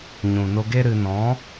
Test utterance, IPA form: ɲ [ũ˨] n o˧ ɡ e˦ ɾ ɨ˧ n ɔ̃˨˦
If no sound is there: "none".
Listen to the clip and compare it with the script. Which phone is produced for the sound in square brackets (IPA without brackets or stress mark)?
ũ˨